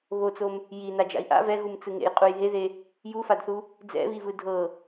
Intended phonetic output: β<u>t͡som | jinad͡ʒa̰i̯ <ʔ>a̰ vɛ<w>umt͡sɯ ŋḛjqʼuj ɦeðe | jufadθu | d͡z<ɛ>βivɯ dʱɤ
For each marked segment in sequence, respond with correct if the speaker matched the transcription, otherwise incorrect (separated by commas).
incorrect, correct, incorrect, incorrect